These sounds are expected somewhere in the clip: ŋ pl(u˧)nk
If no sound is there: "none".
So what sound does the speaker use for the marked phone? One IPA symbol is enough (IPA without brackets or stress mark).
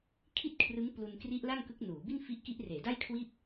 u˧